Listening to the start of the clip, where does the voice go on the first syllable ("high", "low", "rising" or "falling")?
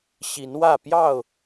rising